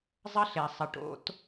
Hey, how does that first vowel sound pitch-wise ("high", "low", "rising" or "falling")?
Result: high